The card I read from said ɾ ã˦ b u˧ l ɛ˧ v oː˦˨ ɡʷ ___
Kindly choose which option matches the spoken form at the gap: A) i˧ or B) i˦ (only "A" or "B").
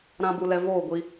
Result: A